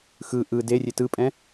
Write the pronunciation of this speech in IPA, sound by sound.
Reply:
x ɯ ʔ ɯ d e rʲ e t ɯ pʼ ɛ̃

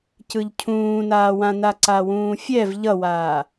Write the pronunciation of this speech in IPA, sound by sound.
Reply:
c ɯ ʎ cʰ ũː n aː w ã n a ǀ a w ũː fʲ ɛ v ʎ ʌ w aː

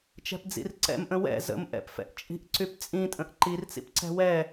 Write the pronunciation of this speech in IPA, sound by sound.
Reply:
t͡ʃ ɛ̤ p d͡z ḭ r ǀ ɛ̰ m ʔ ə̃ w ɛ̰ z ə̰ m ʔ ɛ̰ p f ɛ̰ ʔ t͡ʃʼ i̤ ʔ ǀ y p t͡sʼ ĩ tʼ ə̃ ʔ ǃ i r t͡s ḭ p ǀ ɛ̤ w ɛ

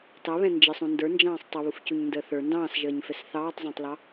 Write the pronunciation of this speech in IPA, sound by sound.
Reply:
t ɑ β ɛ̃ n d͡ʒ ɪ sˤ ũ n d ə˞ n d͡ʒ ɑ̃ː sˤ tˤ ə β u f c u ɲ n d əː θ ə˞ n d ɑ̃ː s ʒ əː ɲ f ɛ s θ ɑː tˤ zˤ ɑ̃ tˤ l ɑ

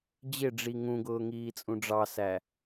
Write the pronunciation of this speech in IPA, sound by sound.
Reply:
d͡ʑ ɪ ɖ͡ʐ i ŋ ũ ɡ ʊː ŋ iː t͡sʼ ũ ɖ͡ʐ ɑ s æ

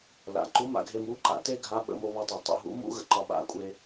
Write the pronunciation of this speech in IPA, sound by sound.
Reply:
l a̰˩ ǃ u˧˥ m a̰˩˧ ɡʱ e˧ m u˧˥ ǃ a̰˩˧ t e˥ ɡʱ a˧˥ ɓ ə̰˩˧ m o˧ β ɒ˧ tˤ e˩ tˤ o̰˧ ɦ ṵ˧˥ m ṵ˥ ɣ ə̰˧ ǃ ɒ˧ ɓ a̰˧˥ kʷʼ e˧

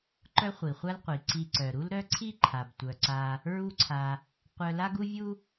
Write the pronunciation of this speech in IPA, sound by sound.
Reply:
ǃ œ˦ χʷ i˩ χʷ a˦ l qʷ i˩ ǀ i˨ ǀ œ˩ ɾ u˥ l ɾ œ˥ ǀʰ i˥ ǃʰ a˩ b tʷ œ˩ ǀ a˨ | ɹ u˦ ǀʰ a˨ | qʷ œ˦ l a˥ ɡ u˥ vʲ u˥

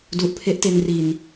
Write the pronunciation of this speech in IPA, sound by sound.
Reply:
d u˨˩ ʔ pʰ e˦˥ ʔ t e˧ n r i˧ n

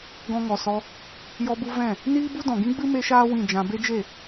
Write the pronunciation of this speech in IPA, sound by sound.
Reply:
ɡ ɔ̃˧ ŋ ɔ˨ s ɔ˧ | j ɔ˧ b u˧ v ɛ̃˦˨ | n iː˦ b u˦ d ɔ̃˨ ɡ ĩ˦ ɡ͡b ɨ˦ m e˦ ʃ aː˦ w ĩ˦˨ d͡ʒ ã˧ b e˦ d͡ʒ e˦˨

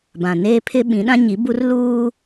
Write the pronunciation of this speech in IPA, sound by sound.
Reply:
b ã˨ n eː˦ pʰ ɪ˦ ɓ ĩ˨˦ ɗ ã˦ ɲ i˨˦ b u˦ r l uː˦

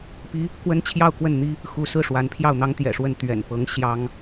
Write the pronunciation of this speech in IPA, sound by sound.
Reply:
p i˥ | k w ə˥ n t͡ɕʰ j ɑ˥˧ ʊ̯ k w ə˥˩ n n̪ i˥ | x u˧˥ s ɹ̩˥˩ ʂ w a˧˥ n pʰ j ɑ˥˩ ʊ̯ n̪ ɑ˥ ŋ t̪ j ɛ̰˨˩ ʂ w ə˥˩ n t̪ ɥ ɛ̰˨˩ n p ɤ˧˥ ŋ ɕ j ɑ˥ ŋ

